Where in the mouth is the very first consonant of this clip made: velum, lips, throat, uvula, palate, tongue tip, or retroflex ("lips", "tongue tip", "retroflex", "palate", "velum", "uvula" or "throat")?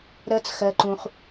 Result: tongue tip